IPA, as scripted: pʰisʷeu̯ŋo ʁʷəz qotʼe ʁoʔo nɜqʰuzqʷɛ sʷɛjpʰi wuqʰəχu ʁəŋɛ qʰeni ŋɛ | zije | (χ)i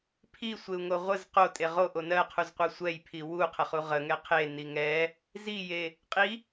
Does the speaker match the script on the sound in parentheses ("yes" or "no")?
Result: no